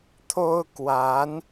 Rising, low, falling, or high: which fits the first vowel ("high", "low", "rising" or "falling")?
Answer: high